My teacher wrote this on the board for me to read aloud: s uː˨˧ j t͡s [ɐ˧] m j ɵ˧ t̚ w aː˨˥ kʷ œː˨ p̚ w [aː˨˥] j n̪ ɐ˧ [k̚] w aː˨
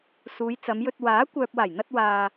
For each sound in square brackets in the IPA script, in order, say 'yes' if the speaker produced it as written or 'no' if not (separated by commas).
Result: no, no, no